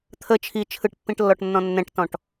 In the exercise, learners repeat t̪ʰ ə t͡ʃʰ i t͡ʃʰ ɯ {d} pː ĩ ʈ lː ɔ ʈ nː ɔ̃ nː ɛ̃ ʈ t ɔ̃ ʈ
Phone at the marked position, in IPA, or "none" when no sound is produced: ʈ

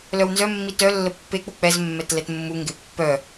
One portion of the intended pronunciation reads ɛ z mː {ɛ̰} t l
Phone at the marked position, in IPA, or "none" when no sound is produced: ɛ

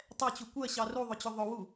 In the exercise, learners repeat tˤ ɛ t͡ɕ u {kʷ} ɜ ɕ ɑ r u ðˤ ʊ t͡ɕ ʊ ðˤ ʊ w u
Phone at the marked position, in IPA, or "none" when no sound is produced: kʷ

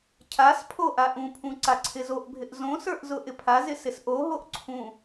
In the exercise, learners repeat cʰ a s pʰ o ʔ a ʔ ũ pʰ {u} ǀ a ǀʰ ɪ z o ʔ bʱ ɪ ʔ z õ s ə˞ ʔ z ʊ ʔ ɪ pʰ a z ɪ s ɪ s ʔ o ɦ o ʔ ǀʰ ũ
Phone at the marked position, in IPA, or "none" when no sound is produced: ũ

